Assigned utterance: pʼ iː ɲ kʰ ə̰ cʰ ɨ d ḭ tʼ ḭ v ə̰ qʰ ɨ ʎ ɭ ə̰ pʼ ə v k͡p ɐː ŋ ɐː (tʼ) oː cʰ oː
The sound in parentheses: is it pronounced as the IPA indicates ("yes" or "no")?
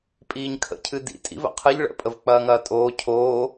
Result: yes